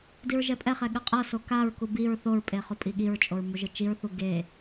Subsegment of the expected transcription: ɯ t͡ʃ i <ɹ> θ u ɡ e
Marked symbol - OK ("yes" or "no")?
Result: yes